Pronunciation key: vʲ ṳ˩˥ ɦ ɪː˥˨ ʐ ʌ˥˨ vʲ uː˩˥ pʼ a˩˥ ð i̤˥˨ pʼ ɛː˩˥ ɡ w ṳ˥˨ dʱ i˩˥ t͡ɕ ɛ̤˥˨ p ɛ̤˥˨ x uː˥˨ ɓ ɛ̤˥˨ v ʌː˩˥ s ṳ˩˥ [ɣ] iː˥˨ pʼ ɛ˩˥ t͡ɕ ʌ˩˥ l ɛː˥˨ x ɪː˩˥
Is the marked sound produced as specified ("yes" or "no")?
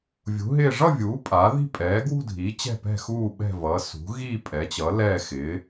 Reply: yes